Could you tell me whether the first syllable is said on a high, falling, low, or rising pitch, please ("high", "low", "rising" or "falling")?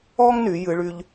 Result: high